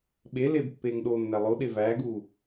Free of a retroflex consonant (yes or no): yes